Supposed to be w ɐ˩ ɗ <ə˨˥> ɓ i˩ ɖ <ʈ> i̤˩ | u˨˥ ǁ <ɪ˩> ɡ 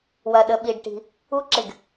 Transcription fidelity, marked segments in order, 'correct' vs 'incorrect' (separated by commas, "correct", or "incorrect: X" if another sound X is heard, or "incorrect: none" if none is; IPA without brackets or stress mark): incorrect: ə˩, correct, correct